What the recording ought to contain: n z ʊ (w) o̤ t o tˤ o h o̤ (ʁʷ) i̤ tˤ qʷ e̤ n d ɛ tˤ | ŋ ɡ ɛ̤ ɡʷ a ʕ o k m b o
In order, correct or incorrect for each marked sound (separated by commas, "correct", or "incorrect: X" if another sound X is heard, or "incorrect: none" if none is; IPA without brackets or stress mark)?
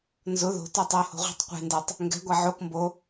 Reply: incorrect: ð, correct